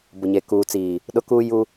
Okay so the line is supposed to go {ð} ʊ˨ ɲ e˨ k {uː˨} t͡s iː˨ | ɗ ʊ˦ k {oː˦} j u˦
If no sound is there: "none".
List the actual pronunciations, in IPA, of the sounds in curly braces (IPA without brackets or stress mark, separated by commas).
b, uː˨, uː˦